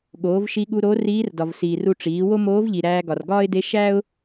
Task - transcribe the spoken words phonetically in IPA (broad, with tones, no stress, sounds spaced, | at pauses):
ɠ oː˩˧ v ʃ i˧ ɠ u˧ ɾ o˧˥ r iː˧˥ r d ɒ˩ v s iː˩ r u˧ ʈ͡ʂ iː˩˧ w o˥ m oː˧˥ v ʎ i˩ ɾ æː˧ ɡ ɒ˩ r ɡ ɒː˥ ɪ̯ d e˧˥ ʃ æ˥ ʊ̯